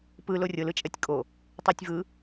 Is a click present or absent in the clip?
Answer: absent